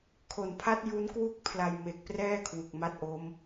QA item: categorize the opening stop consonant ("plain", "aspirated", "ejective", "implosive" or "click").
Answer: aspirated